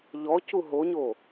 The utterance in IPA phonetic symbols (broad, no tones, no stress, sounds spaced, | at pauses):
ʎ ɔ c u ɦ o ɲ o